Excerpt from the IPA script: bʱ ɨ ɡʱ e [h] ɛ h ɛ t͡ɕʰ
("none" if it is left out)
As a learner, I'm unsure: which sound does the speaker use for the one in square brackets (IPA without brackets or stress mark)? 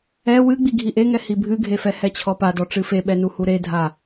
f